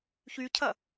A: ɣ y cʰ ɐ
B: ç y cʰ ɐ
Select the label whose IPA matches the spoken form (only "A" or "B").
B